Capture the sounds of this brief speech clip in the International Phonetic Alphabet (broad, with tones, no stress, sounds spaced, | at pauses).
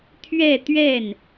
t̪ʰ ɥ ɛ˥˧ t̪ ɥ ɛ˥˩ n